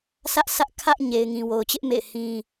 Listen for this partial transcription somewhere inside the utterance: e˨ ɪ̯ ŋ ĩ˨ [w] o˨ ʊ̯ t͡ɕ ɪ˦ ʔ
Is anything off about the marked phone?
no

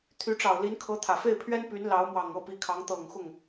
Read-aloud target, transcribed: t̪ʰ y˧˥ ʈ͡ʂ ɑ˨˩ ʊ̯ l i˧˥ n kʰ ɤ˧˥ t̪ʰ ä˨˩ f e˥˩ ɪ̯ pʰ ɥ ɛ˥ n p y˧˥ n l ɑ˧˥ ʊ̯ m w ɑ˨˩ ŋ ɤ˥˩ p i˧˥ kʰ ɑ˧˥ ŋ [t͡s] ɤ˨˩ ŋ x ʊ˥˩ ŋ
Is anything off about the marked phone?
yes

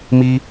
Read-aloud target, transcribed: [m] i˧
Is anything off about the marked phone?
no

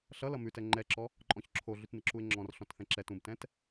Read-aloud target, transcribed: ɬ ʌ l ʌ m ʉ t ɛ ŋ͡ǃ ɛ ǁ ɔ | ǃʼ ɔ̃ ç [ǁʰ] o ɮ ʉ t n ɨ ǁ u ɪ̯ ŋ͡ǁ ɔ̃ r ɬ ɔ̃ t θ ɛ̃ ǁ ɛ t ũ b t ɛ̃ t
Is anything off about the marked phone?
no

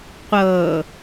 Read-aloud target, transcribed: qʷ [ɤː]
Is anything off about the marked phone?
no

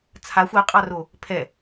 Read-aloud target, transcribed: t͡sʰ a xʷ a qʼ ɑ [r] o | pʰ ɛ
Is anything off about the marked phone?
no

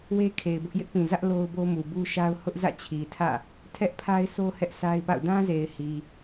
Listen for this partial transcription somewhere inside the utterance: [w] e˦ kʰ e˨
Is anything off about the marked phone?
no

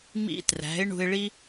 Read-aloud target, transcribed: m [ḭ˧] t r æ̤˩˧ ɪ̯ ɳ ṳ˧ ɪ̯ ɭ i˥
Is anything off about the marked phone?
no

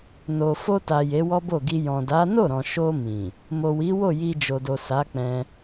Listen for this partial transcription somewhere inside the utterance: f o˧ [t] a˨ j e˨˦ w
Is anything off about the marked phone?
no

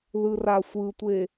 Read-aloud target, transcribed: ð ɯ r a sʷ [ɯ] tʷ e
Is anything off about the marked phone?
no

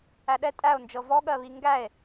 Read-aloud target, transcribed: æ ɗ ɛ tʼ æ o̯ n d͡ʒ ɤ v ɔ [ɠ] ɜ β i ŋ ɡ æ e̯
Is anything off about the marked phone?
no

